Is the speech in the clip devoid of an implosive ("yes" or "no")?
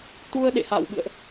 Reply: no